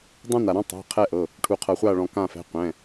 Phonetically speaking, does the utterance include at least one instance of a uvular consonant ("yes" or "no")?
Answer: yes